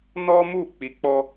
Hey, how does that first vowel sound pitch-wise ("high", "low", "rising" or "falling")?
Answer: high